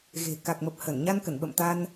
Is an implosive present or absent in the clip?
present